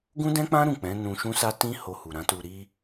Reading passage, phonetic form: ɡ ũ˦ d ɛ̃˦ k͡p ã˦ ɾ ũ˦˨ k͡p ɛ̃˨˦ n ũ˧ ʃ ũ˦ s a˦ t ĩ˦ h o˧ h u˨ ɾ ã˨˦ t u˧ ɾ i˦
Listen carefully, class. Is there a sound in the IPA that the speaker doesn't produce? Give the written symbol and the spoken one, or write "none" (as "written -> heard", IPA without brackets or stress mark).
none